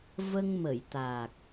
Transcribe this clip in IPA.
v ə˧ ŋ m ə˨˩˨ j t̪ aː˨˩ k̚

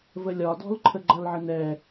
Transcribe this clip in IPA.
v ə lʲ ɒ d ɔ̤ l ǃʰ ə ɡ͡ǃ ʌ l ʕ ə n ɛ

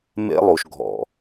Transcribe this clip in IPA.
m ḛ˦ lˠ u˩ ʃ ɡʱ ɔ̰˩

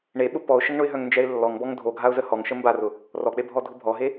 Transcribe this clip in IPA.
ɳ e ɓ ʊ p ɔ ʊ̯ ʃ ə ŋ ɳ ʊ ɪ̯ ɦ œ ŋ n d͡ʒ ɛ ɪ̯ lː ɔ ŋ b ɔ ŋ dʱ o ɡʱ a ʊ̯ z ə h ɔ ŋ ʃ ə m b a r ʊ | r ɔ k͡p e bʱ ɔ dʱ ʊ bʱ ɔ ɦ e

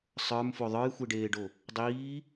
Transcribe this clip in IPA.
sˤ ə˞ m f o ðˤ ə˞ j xʷ e ɖ eː ɖ o | dˤ iː

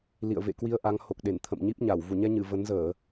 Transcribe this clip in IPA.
l ḭ˧˨ ə̯ v ḛ˧˨ k w i˧ ə̯ ʔ a˨˦ ŋ h o˨˩ k̚ ɗ e˧˩ n t̪ʰ ə̰˧˨ m ɲ i˦˥ p̚ ɲ a˧˩ w v u˧˩ ɲ ɛ˧ ɲ ɨ˧˩ v ə˨˦ n z əː˧˩˨

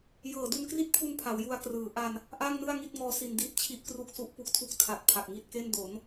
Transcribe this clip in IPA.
j ɤː˨˩ d u˧ n k r i˥˩ t̚ pʰ u˧ n pʰ a˩˦ w j u˧ a̯ k r ɯː˩˦ ʔ a˧ n | ʔ a˥˩ ŋ n ɯ˥˩ a̯ ŋ i˥˩ t̚ ŋ ɔː˦˥ s i˧ n d iː˦˥ t̚ t͡ɕʰ i˥˩ ʔ k r u˥˩ k̚ s u˦˥ ʔ p u˦˥ k̚ tʰ u˥˩ k̚ tʰ a˨˩ t̚ pʰ a˨˩ k̚ ŋ i˥˩ t̚ k e˥˩ n d o˩˦ n

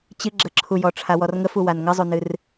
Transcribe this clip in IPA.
t͡ɕ ɨ ɡ͡ǁ ə ǁʰ u j ɔ ʈ͡ʂʰ a w ɔ r ŋ ə f u w a n ŋ ə zˤ u n ɨ r

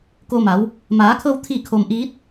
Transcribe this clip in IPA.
k o˧ m a˩˧ w | m aː˩˧ kʰ ɤː˧ w t̪ʰ i˥˨ kʰ o˧ m ʔ iː˧˥ t̚

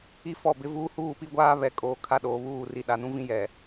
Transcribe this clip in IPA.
i˦ f ɔ˦˨ b ɪ˦ v uː˦ h uː˦˨ p i˦ ɡʷ aː˦ β ɛ˨ kʼ oː˨ kʰ a˦ ɗ oː˨ β uː˦˨ r i˨ ɗ a˨ n ũ˦ v ĩ˦ j ɛ˨

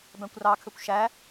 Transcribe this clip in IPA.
b æ̃ kʷ r ɑ kʰ ø kʷ ʃ æ

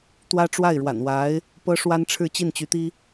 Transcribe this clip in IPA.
t̪ w ä˥ ʈ͡ʂ w a˥˩ ɪ̯ ɻ w a̰˨˩ n w a˧˥ ɪ̯ | p ɤ˥ ʂ w a˥ n ʈ͡ʂʰ ɻ̩˥˧ t͡ɕ i˥˩ n t͡ɕ y˧˥ t̪ i˥

